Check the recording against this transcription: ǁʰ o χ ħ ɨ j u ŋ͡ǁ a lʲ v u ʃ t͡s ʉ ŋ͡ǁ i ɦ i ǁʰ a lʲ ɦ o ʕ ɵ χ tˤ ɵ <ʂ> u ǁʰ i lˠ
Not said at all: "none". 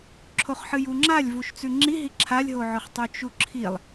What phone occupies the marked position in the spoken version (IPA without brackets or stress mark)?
t͡ʃ